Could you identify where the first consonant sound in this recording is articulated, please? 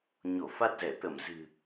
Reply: palatal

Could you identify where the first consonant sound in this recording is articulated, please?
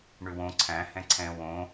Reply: retroflex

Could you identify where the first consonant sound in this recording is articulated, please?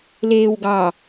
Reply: alveolar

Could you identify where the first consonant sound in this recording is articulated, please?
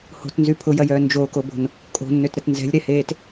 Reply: glottal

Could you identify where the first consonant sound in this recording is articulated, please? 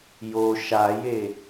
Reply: palatal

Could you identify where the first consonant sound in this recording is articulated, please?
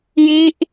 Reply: palatal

